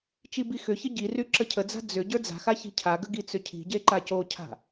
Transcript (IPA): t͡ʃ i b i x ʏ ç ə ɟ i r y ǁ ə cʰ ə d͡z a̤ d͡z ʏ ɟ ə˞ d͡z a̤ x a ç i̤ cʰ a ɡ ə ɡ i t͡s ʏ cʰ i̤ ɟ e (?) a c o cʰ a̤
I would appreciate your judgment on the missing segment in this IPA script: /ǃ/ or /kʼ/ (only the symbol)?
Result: ǃ